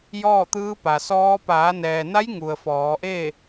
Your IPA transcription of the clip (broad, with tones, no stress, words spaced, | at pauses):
jɔː˥˨t̪ɯː˧˥pa˩sɔː˧˥ paː˩˧nɛː˩na˧˥j ŋu˩ə̯fɔː˩˧ ʔeː˥˨